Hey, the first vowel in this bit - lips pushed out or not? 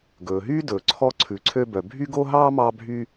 yes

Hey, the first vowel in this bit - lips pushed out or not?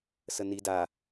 no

